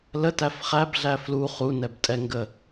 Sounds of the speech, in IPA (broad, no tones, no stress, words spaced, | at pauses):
lə tæfχæb ɮæflu χunɛbtʼɛŋɡə